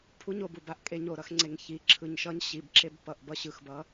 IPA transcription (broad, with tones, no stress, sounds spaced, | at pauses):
pʰ u˧ ɲ o˨˩ b u˨˩ b a˧ ʔ kʼ e˧ ɲ o˨˩ ɾ ʌ˧ x ŋ͡ǀ e˨˩ ŋ ç i˨˩ ǁʰ ɯ˨˩ ɲ ʃ ʌ˧ ɲ ɕ i˨˩ b ǁ e˧ b p ʌ˨˩ ʔ b ʌ˧ ɕ ɯ˨˩ x b ʌ˧